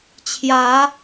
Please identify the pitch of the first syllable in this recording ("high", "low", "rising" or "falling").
rising